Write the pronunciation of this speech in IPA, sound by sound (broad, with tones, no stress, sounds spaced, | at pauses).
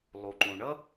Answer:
lˠ u˩ ǃ ũ˩ ɳ ʌ˥